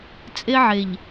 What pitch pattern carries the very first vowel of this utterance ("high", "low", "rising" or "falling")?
high